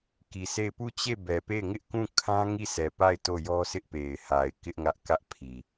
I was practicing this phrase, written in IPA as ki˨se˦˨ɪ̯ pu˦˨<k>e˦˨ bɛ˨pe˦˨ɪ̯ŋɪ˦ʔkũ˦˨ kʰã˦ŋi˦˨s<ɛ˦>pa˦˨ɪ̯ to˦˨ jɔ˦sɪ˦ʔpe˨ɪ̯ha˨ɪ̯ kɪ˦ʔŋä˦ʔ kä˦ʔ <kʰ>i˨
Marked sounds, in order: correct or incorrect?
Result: incorrect, incorrect, incorrect

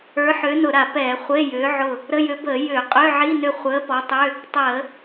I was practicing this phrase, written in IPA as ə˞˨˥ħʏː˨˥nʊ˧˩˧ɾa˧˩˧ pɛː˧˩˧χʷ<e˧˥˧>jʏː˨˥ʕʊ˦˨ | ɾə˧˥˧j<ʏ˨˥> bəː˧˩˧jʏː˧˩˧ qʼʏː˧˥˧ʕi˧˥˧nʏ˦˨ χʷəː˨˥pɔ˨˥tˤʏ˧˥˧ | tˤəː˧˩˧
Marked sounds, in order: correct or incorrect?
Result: correct, correct

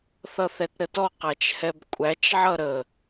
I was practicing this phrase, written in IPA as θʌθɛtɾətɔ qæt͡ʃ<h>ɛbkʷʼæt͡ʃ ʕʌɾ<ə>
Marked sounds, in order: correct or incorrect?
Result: correct, correct

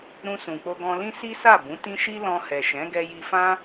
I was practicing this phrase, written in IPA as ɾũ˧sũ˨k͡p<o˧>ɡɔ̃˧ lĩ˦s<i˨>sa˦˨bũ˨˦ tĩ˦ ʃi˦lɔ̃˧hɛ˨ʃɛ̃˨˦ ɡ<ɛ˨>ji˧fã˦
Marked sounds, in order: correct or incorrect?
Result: correct, incorrect, incorrect

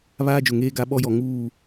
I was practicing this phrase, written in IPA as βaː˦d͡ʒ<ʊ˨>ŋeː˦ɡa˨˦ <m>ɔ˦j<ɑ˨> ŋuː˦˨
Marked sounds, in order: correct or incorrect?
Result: correct, incorrect, incorrect

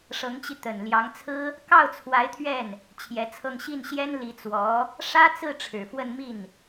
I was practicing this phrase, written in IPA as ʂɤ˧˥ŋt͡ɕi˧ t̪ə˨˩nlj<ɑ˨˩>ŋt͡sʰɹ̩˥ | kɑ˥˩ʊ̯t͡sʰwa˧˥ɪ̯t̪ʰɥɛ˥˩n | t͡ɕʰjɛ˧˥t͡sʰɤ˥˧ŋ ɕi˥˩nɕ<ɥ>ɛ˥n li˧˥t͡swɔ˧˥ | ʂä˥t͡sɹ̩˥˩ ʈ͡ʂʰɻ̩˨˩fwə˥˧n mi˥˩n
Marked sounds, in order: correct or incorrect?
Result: incorrect, incorrect

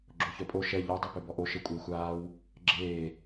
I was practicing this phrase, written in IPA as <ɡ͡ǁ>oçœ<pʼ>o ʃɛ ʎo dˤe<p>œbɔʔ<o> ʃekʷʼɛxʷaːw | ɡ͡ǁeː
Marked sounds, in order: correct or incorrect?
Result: correct, correct, correct, correct

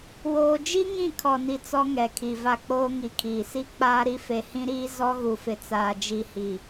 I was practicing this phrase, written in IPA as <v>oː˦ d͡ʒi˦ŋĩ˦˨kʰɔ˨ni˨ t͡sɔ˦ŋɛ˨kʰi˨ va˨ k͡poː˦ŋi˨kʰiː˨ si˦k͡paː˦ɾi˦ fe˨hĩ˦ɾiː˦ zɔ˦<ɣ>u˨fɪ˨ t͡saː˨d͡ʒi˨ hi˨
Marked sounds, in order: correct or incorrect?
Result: incorrect, correct

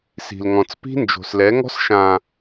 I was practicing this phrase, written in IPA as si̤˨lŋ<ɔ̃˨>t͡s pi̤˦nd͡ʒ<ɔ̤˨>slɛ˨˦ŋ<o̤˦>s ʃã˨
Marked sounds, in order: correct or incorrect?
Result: correct, incorrect, incorrect

